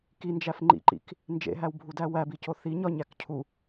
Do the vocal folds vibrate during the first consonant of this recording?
no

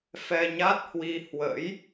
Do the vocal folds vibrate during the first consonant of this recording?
no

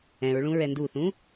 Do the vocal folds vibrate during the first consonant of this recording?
yes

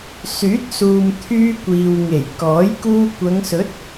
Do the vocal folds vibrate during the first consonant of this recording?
no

